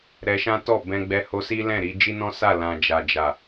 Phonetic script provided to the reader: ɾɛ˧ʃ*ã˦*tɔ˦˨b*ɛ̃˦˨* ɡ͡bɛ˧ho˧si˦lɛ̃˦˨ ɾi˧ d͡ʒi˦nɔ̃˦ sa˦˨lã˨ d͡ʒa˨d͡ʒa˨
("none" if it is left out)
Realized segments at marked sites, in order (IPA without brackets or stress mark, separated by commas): ã˦, ɛ̃˧